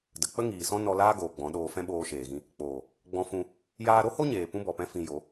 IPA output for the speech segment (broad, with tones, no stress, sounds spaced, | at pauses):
d ə˨ k͡p ə˦ ŋ iː˨ s ɔ̃˦ n ɔ˧ l aː˦ ɡ oː˨ ɡ͡b ɔ̃˨˦ ɗ oː˧ f ɛ̃˦ ɓ oː˧ ʃ eː˨ ɣ ĩ˧ | k͡p oː˨ | ɡ͡b ɔ̃˧ f ũ˧ | j aː˧ ɾ o˦ h o˦ ɲ eː˨ p ũ˦ b ɔ˨ p ɛ̃˦ f ĩ˧ j o˨˦